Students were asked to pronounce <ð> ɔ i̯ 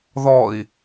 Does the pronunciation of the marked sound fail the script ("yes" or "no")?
no